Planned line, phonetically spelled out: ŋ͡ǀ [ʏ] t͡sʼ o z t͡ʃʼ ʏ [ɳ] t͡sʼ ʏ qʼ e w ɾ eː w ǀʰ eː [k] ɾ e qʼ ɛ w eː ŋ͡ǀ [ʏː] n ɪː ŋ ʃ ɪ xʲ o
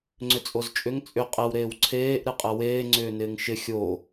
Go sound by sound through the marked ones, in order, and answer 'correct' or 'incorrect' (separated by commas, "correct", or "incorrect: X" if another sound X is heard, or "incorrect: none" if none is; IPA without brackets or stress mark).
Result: correct, incorrect: ŋ, incorrect: ʔ, correct